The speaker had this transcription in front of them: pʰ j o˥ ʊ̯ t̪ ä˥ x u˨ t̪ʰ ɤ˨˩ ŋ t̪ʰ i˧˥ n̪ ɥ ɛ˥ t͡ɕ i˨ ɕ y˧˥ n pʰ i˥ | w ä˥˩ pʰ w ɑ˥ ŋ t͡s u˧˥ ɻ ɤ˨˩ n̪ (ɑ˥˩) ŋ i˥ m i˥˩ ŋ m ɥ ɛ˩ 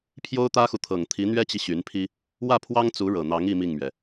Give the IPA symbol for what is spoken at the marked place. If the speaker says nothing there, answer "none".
ɑ˧˥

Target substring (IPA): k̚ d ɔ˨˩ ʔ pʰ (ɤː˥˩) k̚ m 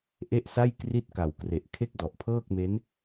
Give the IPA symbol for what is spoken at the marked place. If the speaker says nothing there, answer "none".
ɤː˥˩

